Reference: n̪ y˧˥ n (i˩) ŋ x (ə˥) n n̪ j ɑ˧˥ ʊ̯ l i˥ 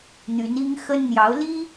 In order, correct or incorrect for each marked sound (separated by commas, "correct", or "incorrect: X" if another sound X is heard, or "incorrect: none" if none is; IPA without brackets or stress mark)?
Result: incorrect: i˥, correct